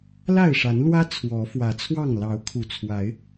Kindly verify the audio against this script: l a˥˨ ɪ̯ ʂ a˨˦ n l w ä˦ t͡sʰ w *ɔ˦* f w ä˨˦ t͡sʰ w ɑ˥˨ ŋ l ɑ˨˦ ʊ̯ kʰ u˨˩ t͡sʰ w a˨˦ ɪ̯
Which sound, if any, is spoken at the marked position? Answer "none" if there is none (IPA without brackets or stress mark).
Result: ɔ˨˦